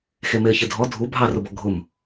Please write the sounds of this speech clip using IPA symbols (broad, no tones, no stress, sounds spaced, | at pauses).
x e m e ə̯ ç e dʱ ɔ dʱ u bʱ ɑ r ʊ b ɔ ɡʱ ʊ m